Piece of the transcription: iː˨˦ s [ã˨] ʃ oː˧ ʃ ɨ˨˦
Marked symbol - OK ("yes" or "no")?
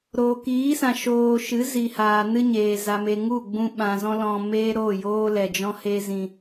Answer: yes